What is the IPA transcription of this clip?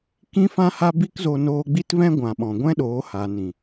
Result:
k ĩ˦ f ã˦ h a˦ b i˦ k z o˧ n oː˧ ɡ͡b i˦ t v ɛ̃˦ ɡʷ ã˨ ɓ ɔ̃˨ ɡʷ ɛ̃˦ ɗ oː˨˦ h a˨ n ĩ˨

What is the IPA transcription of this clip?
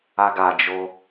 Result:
a ɡ a d͡ʒ o

